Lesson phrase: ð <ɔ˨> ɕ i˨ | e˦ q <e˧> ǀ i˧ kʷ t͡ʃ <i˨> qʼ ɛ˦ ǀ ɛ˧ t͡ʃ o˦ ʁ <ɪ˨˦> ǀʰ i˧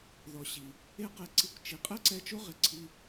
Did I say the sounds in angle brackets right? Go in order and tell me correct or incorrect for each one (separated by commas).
correct, correct, correct, incorrect